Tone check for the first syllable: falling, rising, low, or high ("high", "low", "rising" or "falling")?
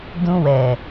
high